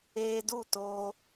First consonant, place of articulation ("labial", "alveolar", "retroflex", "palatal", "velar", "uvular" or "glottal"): alveolar